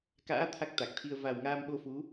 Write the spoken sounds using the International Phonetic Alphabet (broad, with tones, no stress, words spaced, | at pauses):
ka̰ː˧˥ t̪ʰa˦˥k̚t̪a˨˩k̚t̪ʰi˧ə̯ va˨˩wŋaː˧mɓo˧fu˨˦